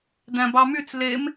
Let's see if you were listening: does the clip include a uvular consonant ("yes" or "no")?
no